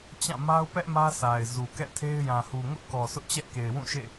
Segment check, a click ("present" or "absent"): absent